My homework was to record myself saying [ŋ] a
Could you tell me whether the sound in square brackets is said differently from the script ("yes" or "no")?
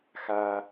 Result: yes